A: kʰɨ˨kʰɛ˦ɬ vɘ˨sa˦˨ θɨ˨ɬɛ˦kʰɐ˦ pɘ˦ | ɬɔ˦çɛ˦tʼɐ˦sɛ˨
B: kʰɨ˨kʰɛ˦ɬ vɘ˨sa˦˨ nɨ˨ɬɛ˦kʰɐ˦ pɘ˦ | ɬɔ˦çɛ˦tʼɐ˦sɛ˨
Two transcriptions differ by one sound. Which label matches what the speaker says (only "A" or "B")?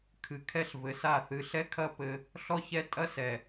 A